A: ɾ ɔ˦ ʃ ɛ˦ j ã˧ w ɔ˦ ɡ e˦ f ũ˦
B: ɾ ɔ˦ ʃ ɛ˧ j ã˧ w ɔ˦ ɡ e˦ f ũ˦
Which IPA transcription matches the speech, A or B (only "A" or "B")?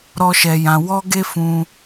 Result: B